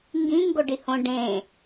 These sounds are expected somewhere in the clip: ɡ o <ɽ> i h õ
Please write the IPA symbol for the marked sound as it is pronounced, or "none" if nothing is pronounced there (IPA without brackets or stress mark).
ɖ